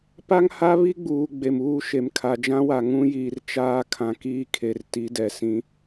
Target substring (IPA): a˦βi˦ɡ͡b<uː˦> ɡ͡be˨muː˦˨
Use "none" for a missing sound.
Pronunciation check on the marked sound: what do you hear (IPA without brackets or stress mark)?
uː˨